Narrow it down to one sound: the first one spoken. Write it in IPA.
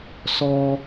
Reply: s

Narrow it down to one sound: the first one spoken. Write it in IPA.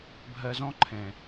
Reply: bʱ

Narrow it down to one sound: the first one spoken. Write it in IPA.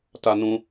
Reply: t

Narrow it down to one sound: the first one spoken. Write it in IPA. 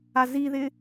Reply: a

